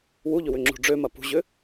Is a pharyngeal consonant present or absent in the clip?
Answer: absent